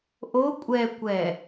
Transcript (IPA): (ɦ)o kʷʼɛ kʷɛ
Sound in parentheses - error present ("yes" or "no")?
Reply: yes